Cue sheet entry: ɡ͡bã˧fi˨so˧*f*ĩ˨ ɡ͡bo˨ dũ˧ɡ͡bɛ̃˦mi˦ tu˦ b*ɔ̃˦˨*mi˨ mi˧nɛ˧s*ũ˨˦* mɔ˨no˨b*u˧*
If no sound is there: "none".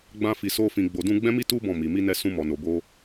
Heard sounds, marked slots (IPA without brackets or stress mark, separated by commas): f, ɔ̃˦˨, ũ˧, o˧